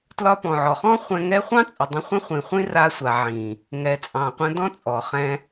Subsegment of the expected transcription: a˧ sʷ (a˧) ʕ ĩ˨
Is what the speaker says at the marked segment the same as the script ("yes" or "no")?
no